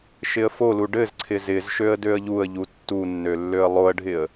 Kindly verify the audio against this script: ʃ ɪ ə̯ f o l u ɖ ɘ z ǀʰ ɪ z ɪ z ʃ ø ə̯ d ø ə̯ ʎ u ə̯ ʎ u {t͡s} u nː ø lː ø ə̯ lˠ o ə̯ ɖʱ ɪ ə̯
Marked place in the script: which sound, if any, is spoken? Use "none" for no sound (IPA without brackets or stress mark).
tː